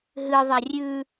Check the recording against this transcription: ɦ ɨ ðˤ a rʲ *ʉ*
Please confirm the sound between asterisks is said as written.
yes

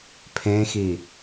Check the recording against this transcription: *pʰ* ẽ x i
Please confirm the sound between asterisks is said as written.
yes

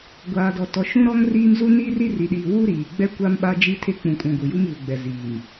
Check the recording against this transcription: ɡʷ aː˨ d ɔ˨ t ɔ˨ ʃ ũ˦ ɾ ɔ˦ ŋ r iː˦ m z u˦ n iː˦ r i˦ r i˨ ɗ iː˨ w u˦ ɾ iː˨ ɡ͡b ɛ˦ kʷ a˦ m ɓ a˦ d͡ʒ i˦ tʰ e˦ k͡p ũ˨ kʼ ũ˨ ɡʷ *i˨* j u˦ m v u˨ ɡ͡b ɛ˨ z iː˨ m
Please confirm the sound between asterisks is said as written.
yes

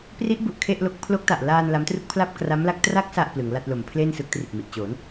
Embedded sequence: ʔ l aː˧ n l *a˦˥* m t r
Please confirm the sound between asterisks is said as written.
yes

